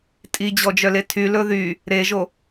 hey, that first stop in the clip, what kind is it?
ejective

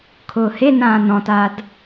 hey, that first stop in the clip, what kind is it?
aspirated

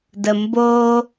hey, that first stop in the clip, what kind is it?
plain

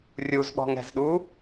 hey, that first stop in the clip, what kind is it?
implosive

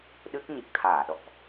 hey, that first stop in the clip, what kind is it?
implosive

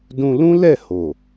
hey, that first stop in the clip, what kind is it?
plain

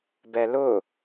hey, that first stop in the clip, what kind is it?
plain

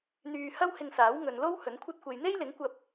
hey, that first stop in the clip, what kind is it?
aspirated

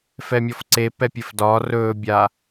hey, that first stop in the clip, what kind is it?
click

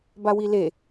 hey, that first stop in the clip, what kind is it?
plain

